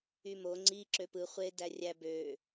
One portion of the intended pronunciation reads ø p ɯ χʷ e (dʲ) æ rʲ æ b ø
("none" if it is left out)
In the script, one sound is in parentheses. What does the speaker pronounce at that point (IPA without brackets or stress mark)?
d